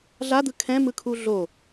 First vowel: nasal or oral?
oral